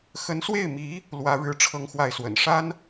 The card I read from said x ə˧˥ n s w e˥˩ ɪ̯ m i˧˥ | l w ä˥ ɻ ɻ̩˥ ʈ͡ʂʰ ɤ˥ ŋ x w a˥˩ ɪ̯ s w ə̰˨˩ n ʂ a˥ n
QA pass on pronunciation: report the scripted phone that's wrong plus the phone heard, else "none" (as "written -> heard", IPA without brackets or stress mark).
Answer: none